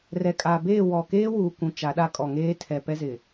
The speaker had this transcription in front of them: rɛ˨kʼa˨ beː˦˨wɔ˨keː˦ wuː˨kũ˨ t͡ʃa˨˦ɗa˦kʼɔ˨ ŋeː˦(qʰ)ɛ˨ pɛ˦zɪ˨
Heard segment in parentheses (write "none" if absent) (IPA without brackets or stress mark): tʰ